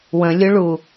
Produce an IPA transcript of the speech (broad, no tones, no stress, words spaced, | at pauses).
wə̃lʲʊɭu